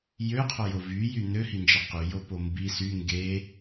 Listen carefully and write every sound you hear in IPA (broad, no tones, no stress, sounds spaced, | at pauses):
j ø qʰ o j o v y j y n ø h i n d͡ʒ e q y j o p o m b i s y ŋ ɡ e